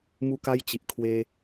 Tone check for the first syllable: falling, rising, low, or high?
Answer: high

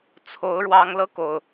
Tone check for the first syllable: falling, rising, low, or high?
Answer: rising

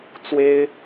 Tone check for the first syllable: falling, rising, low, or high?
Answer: high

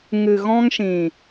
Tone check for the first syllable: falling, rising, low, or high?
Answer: low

